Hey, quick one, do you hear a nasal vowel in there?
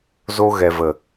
no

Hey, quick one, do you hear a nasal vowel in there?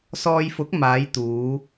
no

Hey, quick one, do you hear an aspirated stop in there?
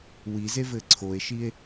yes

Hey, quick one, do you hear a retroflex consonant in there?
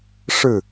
yes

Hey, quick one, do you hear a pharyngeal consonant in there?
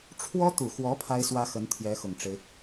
no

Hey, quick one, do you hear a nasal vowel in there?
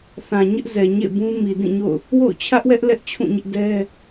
yes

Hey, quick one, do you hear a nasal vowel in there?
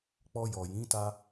yes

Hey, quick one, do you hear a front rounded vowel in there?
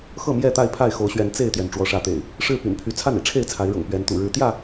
yes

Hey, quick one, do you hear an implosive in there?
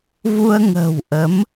no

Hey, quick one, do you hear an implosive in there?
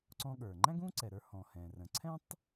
yes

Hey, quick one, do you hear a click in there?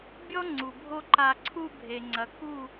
yes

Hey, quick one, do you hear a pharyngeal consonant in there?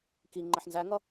yes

